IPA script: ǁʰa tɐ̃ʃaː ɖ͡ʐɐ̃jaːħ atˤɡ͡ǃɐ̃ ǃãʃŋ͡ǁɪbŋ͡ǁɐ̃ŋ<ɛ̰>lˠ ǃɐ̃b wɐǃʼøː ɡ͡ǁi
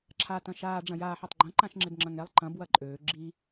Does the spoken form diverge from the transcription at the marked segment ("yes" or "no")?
yes